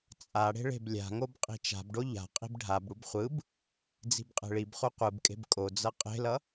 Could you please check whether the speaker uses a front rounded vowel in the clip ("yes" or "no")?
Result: no